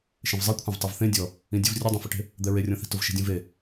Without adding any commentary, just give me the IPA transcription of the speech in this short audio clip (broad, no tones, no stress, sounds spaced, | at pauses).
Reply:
ʃ ẽ v zˤ e kʷʰ ɛ̃ v tˤ ɛ v θ ẽ dʲ ɔ | ĩ dʲ ʊ v rʲ ʊ dˤ ɛ̃ f ʊ ʈ e̤ | d̪ ɛ ɹ e rʲ ɔ̃ θ i̤ t ʊ v ʃ i̤ dʲ ũ v e